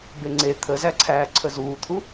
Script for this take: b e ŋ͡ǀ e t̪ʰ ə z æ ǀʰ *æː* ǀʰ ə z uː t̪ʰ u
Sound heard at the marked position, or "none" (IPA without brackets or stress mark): æː